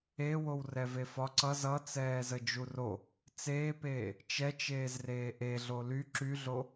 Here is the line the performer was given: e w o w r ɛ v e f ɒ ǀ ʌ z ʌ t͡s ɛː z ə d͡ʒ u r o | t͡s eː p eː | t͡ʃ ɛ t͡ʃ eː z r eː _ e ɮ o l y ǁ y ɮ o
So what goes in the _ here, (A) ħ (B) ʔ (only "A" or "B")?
B